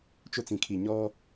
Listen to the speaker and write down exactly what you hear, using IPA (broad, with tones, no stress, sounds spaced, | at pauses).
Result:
t͡ʃ ʊ˦ t͡s ĩ˨ kʰ i˨ ɲ ɔ˦